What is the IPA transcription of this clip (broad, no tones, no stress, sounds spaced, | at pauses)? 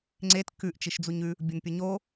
ŋ͡ǀ e t k ʉ ʔ t͡ʃ i ʃ d͡z u ɲ ʉ | bʲ ʊ n pʲ ʊ ɲ o